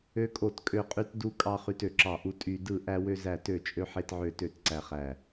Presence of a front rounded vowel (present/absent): present